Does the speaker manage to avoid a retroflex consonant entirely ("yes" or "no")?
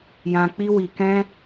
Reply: yes